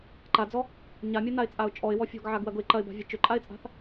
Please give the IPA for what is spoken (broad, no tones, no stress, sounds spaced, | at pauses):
ǃ a d͡z ɔ | ɲ a mʲ ɐ n a ɪ̯ t͡sʼ a ʊ̯ t͡ʃʼ ɔ ɪ̯ w ɔ fʲ ɔ̤ ɡ ʕ a ɡ w ɐ ɡ ʊ ɪ̯ ǃ ɐ ɪ̯ b a̤ vʲ ɛ t͡ʃ ʏ ǃʼ a ɪ̯ t͡sʼ a̤ θ